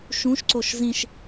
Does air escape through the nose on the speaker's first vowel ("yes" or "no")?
yes